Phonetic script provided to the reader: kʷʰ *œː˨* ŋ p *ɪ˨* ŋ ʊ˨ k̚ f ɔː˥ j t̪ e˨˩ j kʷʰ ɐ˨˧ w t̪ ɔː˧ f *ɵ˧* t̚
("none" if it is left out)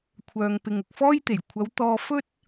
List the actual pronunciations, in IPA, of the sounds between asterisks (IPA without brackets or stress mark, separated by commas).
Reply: œː˨, ɪ˨, ɵ˥